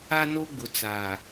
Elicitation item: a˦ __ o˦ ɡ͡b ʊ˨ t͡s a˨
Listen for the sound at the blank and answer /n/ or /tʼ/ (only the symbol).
n